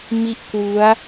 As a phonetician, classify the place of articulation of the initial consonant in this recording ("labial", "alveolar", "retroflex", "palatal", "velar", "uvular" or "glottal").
labial